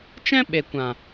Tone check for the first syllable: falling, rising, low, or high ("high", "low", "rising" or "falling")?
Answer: high